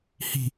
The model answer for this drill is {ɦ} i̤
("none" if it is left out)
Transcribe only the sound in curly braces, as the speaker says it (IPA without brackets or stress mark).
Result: h